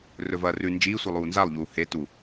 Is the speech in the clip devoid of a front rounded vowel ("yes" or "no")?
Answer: yes